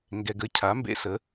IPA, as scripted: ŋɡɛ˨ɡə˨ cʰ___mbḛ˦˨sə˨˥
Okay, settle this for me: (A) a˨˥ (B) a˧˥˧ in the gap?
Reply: A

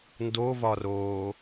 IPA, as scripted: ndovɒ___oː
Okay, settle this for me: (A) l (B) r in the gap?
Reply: B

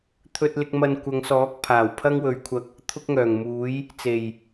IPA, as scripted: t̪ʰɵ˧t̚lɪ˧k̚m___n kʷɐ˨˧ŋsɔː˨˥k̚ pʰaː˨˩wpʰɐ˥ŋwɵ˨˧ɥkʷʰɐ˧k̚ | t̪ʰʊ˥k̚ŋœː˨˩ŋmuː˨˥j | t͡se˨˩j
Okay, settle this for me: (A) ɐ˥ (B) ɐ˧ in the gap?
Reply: B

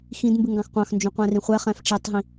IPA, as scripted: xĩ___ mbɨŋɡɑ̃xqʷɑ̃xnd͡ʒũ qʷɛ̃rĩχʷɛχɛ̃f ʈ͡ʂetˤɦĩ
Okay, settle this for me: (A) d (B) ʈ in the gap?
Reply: A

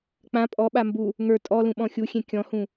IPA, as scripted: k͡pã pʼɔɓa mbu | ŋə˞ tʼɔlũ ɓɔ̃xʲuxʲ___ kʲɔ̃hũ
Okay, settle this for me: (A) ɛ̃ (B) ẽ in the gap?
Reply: B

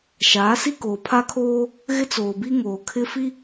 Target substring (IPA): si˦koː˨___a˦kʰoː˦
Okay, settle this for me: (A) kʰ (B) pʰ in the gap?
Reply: B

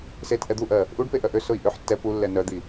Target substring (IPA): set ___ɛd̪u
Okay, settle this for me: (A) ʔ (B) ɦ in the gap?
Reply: A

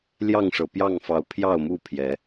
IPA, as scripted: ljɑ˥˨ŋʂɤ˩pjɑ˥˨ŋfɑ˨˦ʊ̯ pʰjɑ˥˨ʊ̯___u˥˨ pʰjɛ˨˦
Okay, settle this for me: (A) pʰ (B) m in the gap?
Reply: B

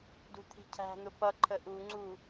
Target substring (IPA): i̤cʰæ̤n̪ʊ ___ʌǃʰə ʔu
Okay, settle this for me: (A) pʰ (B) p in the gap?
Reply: B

